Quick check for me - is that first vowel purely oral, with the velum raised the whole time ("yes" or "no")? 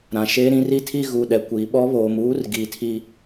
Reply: no